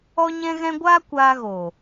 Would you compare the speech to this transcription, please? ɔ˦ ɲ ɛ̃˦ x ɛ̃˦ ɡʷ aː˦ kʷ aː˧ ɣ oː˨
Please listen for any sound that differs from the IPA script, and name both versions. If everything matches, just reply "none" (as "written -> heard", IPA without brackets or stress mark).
x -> ɣ